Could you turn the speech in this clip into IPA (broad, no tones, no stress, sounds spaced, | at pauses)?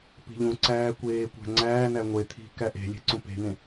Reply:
p i̤ ʎ ũ ǀ æː kʷ eː kʷ æ̤ ŋ͡ǀ æː n æ ŋʷ e t̪ʰ i̤ k æ ʔ e̤ lʲ e̤ ǀ ũ p e̤ n̪ ẽ